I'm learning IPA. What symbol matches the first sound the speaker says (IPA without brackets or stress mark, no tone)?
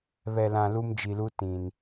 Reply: β